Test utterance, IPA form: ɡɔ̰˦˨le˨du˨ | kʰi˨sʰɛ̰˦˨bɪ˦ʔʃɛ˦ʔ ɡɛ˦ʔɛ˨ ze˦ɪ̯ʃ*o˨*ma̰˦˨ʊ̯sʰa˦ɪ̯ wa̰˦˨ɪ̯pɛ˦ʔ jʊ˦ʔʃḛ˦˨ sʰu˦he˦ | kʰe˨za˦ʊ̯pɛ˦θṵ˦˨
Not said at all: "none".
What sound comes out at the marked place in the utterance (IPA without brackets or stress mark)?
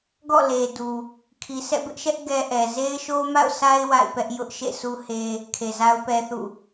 o˦